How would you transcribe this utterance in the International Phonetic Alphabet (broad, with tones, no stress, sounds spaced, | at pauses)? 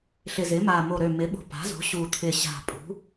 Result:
ɬ ɪ˨˩ z ɪ˩˥ m a˨˩ m o˨˩ ɾ ø˨˩ m ɪ˩˥ ɓ o̤˨˩ p a̤˩˥ z o̤˩˥ ɕ u˨˩ t̪ʰ ɪ˨˩ ɕ a̤˨˩ pʼ ṳ˩˥